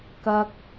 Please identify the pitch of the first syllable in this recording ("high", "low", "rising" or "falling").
low